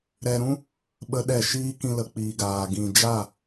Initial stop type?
implosive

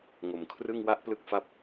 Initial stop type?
aspirated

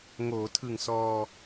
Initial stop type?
aspirated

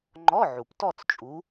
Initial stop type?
click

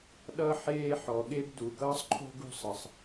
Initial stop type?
implosive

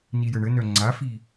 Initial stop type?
click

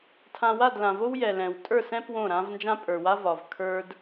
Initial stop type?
aspirated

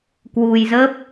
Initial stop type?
plain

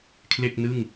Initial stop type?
aspirated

